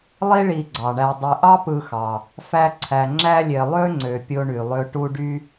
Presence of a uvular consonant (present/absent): absent